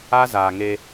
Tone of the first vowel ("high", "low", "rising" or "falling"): high